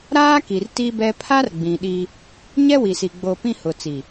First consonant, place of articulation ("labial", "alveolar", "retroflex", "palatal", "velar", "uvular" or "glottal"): alveolar